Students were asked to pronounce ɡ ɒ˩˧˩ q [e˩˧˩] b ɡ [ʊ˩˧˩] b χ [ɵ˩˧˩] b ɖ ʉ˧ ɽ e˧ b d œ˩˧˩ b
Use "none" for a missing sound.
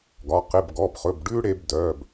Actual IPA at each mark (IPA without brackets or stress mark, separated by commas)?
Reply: e˩˧˩, ɔ˩˧˩, ɵ˩˧˩